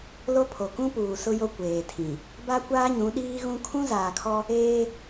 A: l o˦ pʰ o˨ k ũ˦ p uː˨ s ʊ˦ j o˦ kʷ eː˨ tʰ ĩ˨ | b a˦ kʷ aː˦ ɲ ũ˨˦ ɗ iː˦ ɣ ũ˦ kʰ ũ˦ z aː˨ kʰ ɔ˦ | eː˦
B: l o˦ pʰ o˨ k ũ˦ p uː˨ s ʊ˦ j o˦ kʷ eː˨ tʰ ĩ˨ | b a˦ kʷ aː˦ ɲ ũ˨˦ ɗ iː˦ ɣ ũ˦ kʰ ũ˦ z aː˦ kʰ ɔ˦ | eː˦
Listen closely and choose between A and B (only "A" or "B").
A